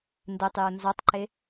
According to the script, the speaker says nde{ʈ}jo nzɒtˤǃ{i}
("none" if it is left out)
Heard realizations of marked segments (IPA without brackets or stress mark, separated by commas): tˤ, e